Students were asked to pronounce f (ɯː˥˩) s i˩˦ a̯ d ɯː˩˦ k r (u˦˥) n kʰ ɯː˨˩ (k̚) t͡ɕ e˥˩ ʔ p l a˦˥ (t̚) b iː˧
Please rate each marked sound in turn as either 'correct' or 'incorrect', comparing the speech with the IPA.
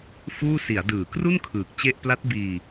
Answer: incorrect, incorrect, correct, correct

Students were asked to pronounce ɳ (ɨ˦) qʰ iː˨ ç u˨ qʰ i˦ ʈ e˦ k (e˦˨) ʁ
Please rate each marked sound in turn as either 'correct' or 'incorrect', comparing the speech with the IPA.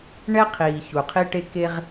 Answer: incorrect, incorrect

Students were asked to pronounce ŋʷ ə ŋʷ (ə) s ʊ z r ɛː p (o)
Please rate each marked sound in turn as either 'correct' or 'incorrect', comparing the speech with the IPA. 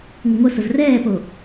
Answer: correct, correct

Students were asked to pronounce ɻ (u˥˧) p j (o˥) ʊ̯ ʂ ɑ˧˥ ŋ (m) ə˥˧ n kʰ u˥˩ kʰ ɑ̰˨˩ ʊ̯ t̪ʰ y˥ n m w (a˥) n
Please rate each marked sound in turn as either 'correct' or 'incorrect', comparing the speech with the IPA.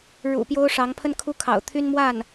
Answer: incorrect, correct, incorrect, incorrect

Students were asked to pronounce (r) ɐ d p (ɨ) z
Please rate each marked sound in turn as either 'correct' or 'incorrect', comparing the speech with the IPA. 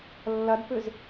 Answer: incorrect, incorrect

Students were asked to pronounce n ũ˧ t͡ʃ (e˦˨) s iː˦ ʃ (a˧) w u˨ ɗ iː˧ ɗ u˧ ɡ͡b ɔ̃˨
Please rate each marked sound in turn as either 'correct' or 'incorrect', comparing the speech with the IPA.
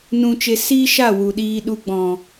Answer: incorrect, incorrect

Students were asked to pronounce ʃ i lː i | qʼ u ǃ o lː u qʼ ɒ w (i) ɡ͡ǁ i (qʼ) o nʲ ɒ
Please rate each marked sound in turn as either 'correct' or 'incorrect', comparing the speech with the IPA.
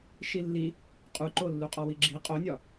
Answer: correct, correct

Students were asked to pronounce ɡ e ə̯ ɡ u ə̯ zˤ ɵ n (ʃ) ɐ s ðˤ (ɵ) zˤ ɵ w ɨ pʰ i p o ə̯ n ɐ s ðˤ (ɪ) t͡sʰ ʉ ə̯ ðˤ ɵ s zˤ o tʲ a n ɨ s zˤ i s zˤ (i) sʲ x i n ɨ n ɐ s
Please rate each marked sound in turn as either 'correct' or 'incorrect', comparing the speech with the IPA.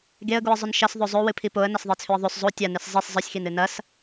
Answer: correct, correct, incorrect, incorrect

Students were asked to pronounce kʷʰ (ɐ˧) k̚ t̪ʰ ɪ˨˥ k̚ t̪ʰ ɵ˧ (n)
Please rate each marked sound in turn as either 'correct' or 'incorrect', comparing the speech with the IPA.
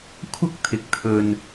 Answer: incorrect, correct

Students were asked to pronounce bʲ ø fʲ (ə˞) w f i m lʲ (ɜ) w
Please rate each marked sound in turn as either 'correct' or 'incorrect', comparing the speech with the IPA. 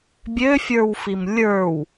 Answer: correct, incorrect

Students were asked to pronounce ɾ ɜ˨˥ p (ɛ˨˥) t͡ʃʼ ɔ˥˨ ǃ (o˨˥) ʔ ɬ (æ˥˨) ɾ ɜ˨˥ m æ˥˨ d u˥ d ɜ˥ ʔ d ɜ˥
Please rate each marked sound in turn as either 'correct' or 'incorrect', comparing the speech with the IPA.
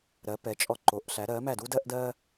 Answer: correct, correct, incorrect

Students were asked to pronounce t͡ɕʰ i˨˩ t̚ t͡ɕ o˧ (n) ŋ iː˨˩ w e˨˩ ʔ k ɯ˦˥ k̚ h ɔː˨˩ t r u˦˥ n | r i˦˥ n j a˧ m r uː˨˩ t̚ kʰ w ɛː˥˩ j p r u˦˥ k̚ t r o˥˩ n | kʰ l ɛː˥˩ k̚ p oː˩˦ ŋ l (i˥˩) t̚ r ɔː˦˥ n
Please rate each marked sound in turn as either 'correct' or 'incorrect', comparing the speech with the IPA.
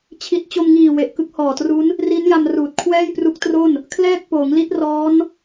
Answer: incorrect, incorrect

